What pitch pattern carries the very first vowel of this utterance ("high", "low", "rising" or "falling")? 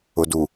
low